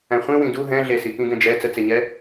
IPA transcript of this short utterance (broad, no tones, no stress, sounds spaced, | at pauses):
æ̃ χʷ ĩ w ĩ d u ɦ ɛ̃ ɮ e s i k ĩ ɡ ɛ̃ d͡ʒ ɛ t͡s ə t͡s e ɲ ɛ